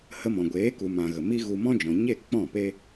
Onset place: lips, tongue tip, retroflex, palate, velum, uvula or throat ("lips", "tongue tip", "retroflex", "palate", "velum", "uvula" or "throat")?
throat